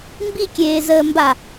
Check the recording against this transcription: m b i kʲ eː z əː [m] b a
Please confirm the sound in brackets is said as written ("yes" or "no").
yes